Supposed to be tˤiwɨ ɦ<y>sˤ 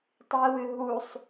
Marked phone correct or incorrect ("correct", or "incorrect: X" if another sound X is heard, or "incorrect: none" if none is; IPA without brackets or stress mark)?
incorrect: u